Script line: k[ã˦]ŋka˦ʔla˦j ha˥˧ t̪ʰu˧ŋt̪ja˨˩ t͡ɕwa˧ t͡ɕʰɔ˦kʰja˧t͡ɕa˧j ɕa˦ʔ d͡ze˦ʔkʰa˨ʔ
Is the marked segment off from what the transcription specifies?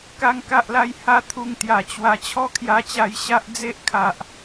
yes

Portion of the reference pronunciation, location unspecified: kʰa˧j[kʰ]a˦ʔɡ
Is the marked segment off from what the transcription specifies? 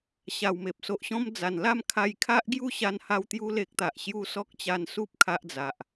no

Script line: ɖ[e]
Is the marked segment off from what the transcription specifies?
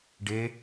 no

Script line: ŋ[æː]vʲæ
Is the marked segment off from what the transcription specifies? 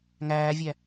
no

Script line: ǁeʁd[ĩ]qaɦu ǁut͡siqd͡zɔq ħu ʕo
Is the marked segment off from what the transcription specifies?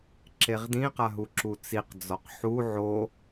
no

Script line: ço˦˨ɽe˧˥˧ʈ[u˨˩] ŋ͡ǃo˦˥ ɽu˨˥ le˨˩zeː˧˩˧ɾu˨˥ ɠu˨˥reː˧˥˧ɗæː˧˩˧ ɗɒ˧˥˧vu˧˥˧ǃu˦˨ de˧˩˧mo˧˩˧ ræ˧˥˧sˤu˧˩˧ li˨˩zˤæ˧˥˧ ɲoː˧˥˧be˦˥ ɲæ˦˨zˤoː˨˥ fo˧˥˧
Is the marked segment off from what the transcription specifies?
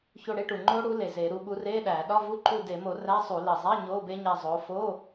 no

